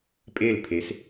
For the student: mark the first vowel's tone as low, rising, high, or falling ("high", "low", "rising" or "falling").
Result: falling